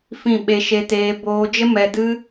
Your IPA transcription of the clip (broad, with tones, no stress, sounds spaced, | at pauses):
f ĩ˦˨ ɓ e˧ ʃ e˧ t eː˧ b oː˧ d͡ʒ ə˦ m ɛ˧ d ɨ˦